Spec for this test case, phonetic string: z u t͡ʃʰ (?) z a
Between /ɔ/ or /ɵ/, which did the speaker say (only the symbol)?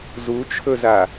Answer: ɵ